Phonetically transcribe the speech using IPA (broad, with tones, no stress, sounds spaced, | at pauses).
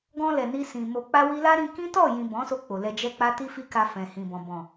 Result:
ɡ ɔ̃˧ l ɛ˨ n i˧ s ĩ˨ m o˨ k͡p a˧ w i˧ l a˦ ɾ ĩ˧ k ĩ˦ t ɔ˦˨ j ĩ˨ b ɔ̃˨˦ s o˧ k͡p o˨ l ɛ˧ d͡ʒ ɛ˦ k͡p a˦ t i˦ f i˦ k a˧ f ɛ̃˨ h ĩ˨ b ɔ̃˨ b ɔ̃˨